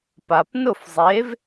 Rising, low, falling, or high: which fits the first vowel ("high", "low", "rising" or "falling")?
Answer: low